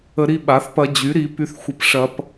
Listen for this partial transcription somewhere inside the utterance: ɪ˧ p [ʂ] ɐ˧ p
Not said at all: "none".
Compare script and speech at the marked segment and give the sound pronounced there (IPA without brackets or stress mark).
ʂ